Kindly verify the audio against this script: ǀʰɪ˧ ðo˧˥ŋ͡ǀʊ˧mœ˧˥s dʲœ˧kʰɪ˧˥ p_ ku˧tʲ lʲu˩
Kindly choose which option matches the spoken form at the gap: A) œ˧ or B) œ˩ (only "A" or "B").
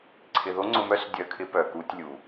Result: B